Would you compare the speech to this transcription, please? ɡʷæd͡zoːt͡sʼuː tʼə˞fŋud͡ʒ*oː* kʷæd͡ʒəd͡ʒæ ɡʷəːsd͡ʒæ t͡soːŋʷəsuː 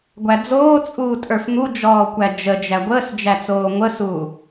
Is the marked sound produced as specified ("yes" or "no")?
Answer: no